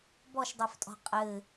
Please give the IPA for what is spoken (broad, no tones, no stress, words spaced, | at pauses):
bɔʃdˤeftʼɔ̤ qʼɘ